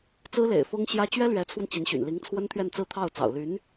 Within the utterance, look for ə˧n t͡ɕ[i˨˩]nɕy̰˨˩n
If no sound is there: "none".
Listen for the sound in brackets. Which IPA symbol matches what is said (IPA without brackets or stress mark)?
i˧˥